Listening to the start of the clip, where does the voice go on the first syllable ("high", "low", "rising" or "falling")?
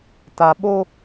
low